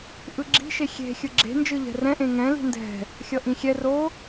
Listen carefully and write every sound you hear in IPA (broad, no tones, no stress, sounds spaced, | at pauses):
ʔ ɯ ɡ͡ǁ i̤ ʃ e xʲ e̤ xʲ ɯ ɡ͡ǁ e̤ n d͡ʒ ɯ ʎ ɛ̤ r ɛ̃ ʔ ẽ ŋ ɛ̃ l i̤ n d ɛ̤ | xʲ ʌ ʔ ĩ xʲ ɛ r o